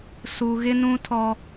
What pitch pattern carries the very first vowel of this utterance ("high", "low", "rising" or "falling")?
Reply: high